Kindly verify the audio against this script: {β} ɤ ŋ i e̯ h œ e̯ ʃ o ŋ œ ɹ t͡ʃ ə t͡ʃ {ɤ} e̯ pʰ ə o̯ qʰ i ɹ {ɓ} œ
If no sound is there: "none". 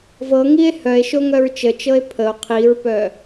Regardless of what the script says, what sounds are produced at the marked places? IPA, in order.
v, ɤ, p

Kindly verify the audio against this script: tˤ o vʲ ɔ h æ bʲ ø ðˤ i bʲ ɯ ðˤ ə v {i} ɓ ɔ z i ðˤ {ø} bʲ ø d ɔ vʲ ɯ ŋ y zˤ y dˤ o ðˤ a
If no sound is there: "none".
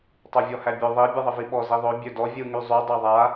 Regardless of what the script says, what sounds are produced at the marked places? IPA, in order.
i, ø

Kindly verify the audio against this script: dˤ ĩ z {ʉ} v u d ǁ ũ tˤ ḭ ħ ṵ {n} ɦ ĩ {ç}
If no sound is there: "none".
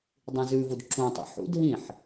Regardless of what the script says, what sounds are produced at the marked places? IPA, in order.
ʉ, d, ħ

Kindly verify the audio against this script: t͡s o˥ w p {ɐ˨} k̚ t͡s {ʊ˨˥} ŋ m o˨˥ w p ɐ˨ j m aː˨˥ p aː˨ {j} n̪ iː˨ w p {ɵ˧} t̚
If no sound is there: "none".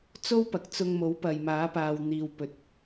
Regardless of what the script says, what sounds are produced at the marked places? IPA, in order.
ɐ˨, ʊ˧, w, ɵ˨˥

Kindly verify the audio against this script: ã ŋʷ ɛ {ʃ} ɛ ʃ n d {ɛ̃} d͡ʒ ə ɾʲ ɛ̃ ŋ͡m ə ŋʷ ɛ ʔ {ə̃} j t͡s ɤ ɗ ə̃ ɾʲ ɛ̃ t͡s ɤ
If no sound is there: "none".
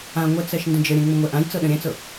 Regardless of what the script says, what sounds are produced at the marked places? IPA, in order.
t͡s, ə̃, ã

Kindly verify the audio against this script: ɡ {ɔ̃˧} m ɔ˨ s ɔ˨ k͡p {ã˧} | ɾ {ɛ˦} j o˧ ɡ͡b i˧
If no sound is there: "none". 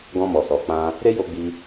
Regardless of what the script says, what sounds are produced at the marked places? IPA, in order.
ɔ̃˧, ã˧, e˦

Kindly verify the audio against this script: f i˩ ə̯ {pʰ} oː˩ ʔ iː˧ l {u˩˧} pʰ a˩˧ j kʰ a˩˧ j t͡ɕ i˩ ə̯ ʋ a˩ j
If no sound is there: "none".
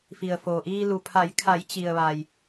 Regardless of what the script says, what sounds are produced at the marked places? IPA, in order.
f, u˩

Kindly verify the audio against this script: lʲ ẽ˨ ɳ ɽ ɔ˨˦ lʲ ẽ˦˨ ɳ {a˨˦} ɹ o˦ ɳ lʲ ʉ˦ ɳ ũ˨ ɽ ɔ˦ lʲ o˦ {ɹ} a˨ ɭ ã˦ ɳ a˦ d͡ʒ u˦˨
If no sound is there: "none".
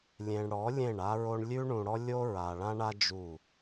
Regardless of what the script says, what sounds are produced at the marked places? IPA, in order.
a˦, ɹ

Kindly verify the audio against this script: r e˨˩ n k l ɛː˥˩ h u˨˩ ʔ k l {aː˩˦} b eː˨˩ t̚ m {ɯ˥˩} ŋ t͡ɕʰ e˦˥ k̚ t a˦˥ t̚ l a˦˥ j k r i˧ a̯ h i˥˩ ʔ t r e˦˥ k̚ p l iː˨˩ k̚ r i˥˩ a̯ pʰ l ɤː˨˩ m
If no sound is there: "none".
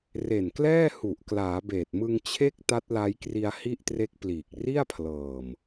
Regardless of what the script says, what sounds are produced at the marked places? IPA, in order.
aː˩˦, ɯ˧

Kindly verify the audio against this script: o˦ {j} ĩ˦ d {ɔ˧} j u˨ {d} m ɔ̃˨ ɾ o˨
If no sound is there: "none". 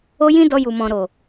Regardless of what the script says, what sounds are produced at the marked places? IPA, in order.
j, ɔ˧, none

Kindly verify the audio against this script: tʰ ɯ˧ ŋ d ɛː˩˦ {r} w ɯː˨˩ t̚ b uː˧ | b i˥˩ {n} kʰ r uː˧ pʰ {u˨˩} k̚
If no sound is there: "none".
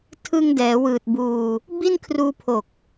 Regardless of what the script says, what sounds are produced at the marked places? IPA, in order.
none, n, o˨˩

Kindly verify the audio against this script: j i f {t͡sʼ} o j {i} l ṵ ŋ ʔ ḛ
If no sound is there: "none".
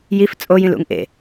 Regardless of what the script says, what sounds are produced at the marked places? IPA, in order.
t͡sʼ, ĩ

